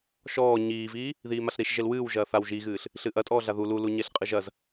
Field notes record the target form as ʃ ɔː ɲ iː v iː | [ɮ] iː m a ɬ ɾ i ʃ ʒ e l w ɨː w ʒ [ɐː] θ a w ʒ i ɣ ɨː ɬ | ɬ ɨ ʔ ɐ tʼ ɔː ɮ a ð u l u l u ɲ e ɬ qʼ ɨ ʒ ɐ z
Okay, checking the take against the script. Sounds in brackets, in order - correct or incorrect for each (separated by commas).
incorrect, correct